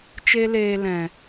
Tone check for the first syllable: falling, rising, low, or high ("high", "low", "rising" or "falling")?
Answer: high